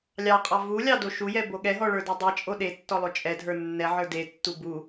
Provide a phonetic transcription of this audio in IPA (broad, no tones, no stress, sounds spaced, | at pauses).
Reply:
lʲ ɑ qʼ ɑ v u lʲ ɑ d o ʃ u j ɛ b o ɠ ɛ ɦ ɔ ɭ ə˞ d e dˤ ɛ t͡ʃʼ o ɗ e tː ɔ lˠ o t͡ʃʼ ɛ dʱ ə˞ nː ɛ ʕ ə˞ d e tː u b u